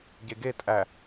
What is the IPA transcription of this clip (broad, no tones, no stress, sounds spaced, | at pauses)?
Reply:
ɟ e ɡ e tʼ æ